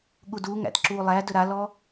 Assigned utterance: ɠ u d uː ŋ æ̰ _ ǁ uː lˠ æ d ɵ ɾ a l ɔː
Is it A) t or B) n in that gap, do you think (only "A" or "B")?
A